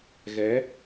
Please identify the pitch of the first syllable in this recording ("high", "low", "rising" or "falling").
rising